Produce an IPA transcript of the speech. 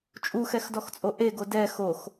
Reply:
t͡ʃʼuxɛxdɔxt͡sʼo ʔeɡo dɛ xox

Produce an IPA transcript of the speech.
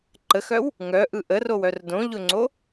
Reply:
ǃəxœw | ŋœʔɯ ʔərowœr dõʎʊŋ͡ǀo

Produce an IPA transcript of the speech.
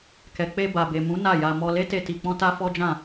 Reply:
kɛ˨k͡pe˧ba˨ be˨mũ˨˦ na˦˨ja˧ mɔ˧le˦te˧ ti˨k͡pɔ̃˧ ta˦fɔ˦d͡ʒã˦˨

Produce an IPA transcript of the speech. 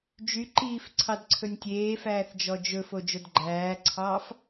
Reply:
d͡ʒyǃiːf ǀʰɑdǀʰɵnʲtʲeːfæːθ d͡ʒɔd͡ʒɵfo d͡ʒodɡ͡ǃæːǀʰɑːf

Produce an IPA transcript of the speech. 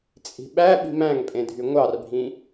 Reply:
t͡sʼi̤ɓæ ɓi̤mæ̃ŋpʼẽdʱy ŋʷɑrbʱĩ

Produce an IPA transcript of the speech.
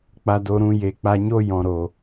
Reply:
k͡pa˨do˨ɾũ˨ je˨k͡pa˧ɲo˦ jɔ̃˨ɾo˨

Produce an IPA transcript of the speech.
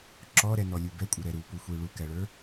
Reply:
ǁɔɾɛnɔlʲu bɛkʷʼɪɾɛ ɾupuxʷi ɭukæɭə˞

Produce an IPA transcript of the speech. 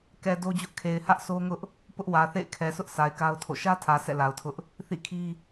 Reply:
kɛ˨ do˦d͡ʑʊ˦ʔ kʰe˨ɪ̯hä˦ʔsʰo˦ŋʊ˦ʔ | pʊ˦ʔwä˨θḛ˦˨ɪ̯ kʰɛ˨sʰʊ˦ʔ sʰa˨ɪ̯ka˦ʊ̯tʰo̰˦˨ ʃä˦tʰä˨ sʰɛ̰˦˨la˨ʊ̯tʰʊ˦ʔ | θḭ˦˨kʰi˦

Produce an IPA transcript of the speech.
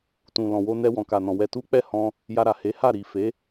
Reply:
tũ˨lɔ̃˨wo˧ nɛ˧wɔ̃˨ka˨nɔ̃˨ wɛ˧tu˦ k͡pɛ˦˨hɔ̃˧ | ja˧ɾa˨he˨˦ha˦˨ ɾi˨fe˨˦

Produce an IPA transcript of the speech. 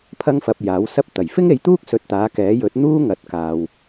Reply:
pʰɐ˥ŋfɐ˧p̚jaː˨˥wsɐ˥p̚ t̪ɐ˨˩jfɪ˥ŋe˨˧jt̪uː˥k̚ sɵ˧t̚t̪aː˨˥kɛː˨˥ jɵ˨˥t̚n̪uː˥ŋɐ˨˥t̚kaː˨w

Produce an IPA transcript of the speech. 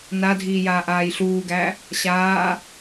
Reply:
nadʱiːjaːʔaːj ɬuːɡæ | ɕaː

